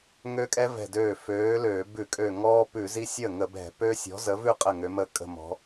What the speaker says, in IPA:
ŋ ø˦ kʼ ɛ˦ v ɛ̤˧˩ d øː˧˩ f øː˨˥ l øː˧˩˧ b ʉ˧˩˧ kʼ ø˧˩ ŋ ɔː˦ p ʉ˧˩˧ z i˦ sʲ əː˥˩ ŋ ə˧˩˧ b ɛ̤˧˩˧ p ø˦ sʲ ɔ̤˨˥ z ə˨˥ v ʉ˥˩ qʼ ə˥˩ ŋ ø˨˥ m ə˥˩ kʼ ə̤˥˩ m ɔ̤˨˥

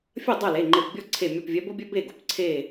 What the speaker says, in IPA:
fʲ ɐ˥˩ dˤ ɐ˥˩ l e˩˧˩ ŋ͡ǃ e˧˩ p bʲ ɔ˥˩ ǀʰ e˧˩ mʲ ɔ˧˩ p vʲ ɛ˨˦ b o˦ bʲ œ˦ b e˥˩ ɡ o˩˧˩ p ǀʰ e˧˩

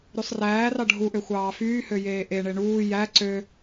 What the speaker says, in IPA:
ɾ y sˤ r æː r ɑ ɖʱ u ʔ ø xʷ ɑː f yː h ø j eː ʔ e ɳ e ɳ uː j æ ǀ ø

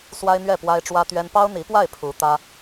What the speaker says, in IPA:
s w a˥ ɪ̯ n̪ ɥ ɛ˥˩ p w a˥ ɪ̯ ʈ͡ʂ w ä˥ t̪ ɥ ɛ˥ n p ɑ˥ ʊ̯ n̪ i˧˥ p w a˥˩ ɪ̯ pʰ u˧˥ t̪ ä˥

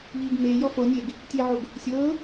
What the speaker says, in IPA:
ʎ iː ɡ m eː j ɔ f o nʲ e ɡ | tʲ e ʕ o ɡ | sʲ ɤː

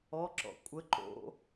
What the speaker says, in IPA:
ɔ ǁ ɔ̰ kʷʼ ə ǃ o̰

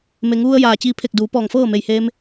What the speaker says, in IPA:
m e˩˧ ŋ ʋ u˧ ə̯ j aː˩ t͡ɕ iː˧ pʰ e˧˩ k̚ d uː˩˧ p ɔː˧˩ ŋ f ɤː˥˨ m e˧˩ j h eː˧ m

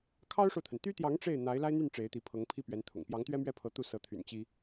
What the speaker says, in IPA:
kʰ ɑ˥ ʊ̯ ʂ o˨ ʊ̯ t̪ʰ ə˩ n t̪ y˥ t̪ j ɑ˧˥ ŋ ʈ͡ʂ e˥˩ ɪ̯ n̪ a˧˥ ɪ̯ l a˥ ɪ̯ n̪ y˥˩ n ʈ͡ʂ e˧˥ ɪ̯ t̪ i˧˥ pʰ ɤ˧˥ ŋ pʰ i˥˩ p ɥ ɛ˧˥ n t̪ʰ ʊ̰˨˩ ŋ p j ɑ˧˥ ŋ t̪ ɥ ɛ˥ m ɥ ɛ˥˩ pʰ ɤ˧˥ t̪ u˥˩ s ɤ˧˥ t̪ʰ y̰˨˩ n t͡ɕ i˥

